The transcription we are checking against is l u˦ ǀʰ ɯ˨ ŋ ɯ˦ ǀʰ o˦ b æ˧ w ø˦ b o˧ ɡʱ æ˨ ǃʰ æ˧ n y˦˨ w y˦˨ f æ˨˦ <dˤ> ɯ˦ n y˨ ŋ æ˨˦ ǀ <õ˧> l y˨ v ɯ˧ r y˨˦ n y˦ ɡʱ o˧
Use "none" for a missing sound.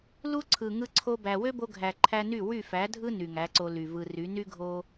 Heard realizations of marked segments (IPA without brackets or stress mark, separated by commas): dʱ, o˧